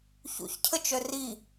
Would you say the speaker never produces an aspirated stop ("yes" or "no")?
no